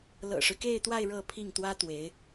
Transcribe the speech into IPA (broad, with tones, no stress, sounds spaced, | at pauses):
l ɤ̰˨˩ ʂ ɻ̩˦ k e˥˧ ɪ̯ t̪ w a˥˧ ɪ̯ ɻ ɤ˥˧ pʰ i˥˩ ŋ t̪ w ä˥ t̪ w e˧˥ ɪ̯